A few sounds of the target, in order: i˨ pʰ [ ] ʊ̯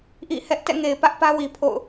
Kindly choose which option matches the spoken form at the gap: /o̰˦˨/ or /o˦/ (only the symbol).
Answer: o̰˦˨